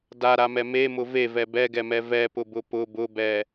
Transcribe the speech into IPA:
d a ɾ a m ɛ m e m ʊ v e v ɛ b ɛ ɡ ɛ m ɛ v ɛ p ʊ b ʊ p ʊ b ʊ b ɛ

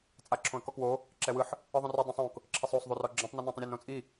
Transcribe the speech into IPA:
t͡sʼ a ǁʰ õ ə̯ k ɔ k w o | ǁ ɛ w ɯ ħ | ɯ ðˤ õ r o dˤ ũ sˤ õ k | ǁʰ e sˤ o sˤ ðˤ u r ɔ ɡ͡ǁ ũ tˤ n i n õ tˤ ũ ɾʲ e n õ t͡sʼ i

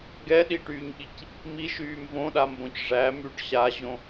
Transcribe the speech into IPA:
ɡ ɛ ɗ i ʈ yː ɲ ɠ i c | m i ʃ yː m v õ ɗ a m b õ c ʐ æ m y ɖ ɕ a ʑ õ

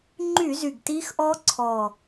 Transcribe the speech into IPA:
ŋ͡ǃ y˧˩˧ z y˨˩ ɡ t iː˦˥ x ʔ ɔː˦˥ ǀʰ ɔː˨˩

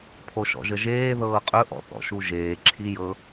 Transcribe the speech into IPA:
pʰ o ʃ ɔ̰ ʒ ə ʒ eː ð ɤː qʼ ɵ ʔ ɔ̰ θ ɔ̰ ʃ u ʒ eː ǁʰ i j ɤ

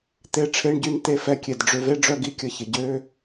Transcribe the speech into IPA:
t̪ e˧ ʈ͡ʂʰ e˧˥˧ ɳ ɟ y˧˥ n t̪ e˧˥ f ɛ˧ kʲ e˩ d ɖ͡ʐ ø˧ v e˧˥˧ ɖ͡ʐ œ˧ ɡ i˧ kʲ ə˧ ç ɪ˩ ɟ ø˧˥˧

